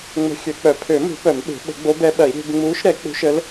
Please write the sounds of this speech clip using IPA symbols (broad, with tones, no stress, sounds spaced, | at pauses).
ŋ͡m ə̤˧˥ xʲ ø˨˩˦ k͡p œ˨˩˦ pʰ ø˨˩˦ m ṳ˨˩˦ p œ˨˩˦ m ɓ e̤˨˩˦ ɓ ə̤˨˩˦ ɡ͡b o˧˥ b ɛ˧˥ ɓ ɐ˨˩˦ i̯ ɾʲ e̤˧˥ b ŋ͡m uː˧˥ ʃ ɾ ɛ˨˩˦ k͡p ṳ˧˥ ʃ ə˧˥ l